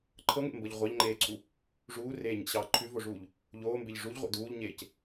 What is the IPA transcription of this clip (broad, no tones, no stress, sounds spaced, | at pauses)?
ǃʰ ɤ ŋ ḛ m b ɤ ʎ ʁʷ ɑ ʎ ŋ͡ǃ eː ǀʰ u | ʐ uː r eː ɲ ḛ ɕ ɑː ǃʰ ʉ v o ʐ uː ʎ | ʎ oː m b e ʎ ʐ u ʎ ʁʷ ḛ d uː ʎ ɲ eː c